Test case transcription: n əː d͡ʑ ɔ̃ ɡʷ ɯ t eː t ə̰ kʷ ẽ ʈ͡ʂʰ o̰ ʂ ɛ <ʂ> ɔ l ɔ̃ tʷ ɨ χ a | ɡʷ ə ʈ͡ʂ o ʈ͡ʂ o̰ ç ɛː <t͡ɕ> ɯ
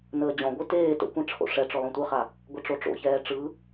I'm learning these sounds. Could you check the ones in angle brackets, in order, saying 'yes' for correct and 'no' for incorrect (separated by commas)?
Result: no, no